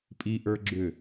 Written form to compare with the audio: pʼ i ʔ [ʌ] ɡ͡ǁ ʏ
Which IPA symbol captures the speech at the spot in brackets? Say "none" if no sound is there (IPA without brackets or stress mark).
ə˞